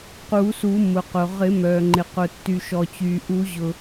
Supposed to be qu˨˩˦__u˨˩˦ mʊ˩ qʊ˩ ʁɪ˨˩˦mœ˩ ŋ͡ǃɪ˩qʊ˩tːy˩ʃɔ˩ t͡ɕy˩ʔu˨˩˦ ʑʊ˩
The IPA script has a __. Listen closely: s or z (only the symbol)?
s